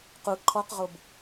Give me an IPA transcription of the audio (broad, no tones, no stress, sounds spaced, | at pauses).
q u ǃʰ ɔ q ʁ o b